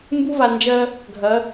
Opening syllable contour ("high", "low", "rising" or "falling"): high